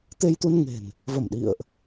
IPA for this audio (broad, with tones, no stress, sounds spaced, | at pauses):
t̪ e˧ j t̪ u˧ n ŋ e̤˨˩ n | v ə˧˩ m ɗ ḭ˧˨ ə̯ ʔ